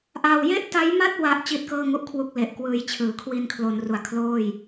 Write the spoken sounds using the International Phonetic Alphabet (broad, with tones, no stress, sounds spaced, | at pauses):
ʔ a˧ w j e˥˩ ʔ t a˦˥ j m a˥˩ t̚ w a˥˩ ʔ t͡ɕ i˦˥ t̚ k ɤː˥˩ ŋ u˥˩ ʔ kʰ w u˥˩ k̚ l e˨˩ ʔ k w ɯː˧ j t͡ɕʰ ɯː˩˦ kʰ w i˧ n kʰ l o˩˦ n r u˨˩ a̯ kʰ l oː˥˩ j